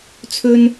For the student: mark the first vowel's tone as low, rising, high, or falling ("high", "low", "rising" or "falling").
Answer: high